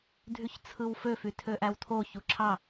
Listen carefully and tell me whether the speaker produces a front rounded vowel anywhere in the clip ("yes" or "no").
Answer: yes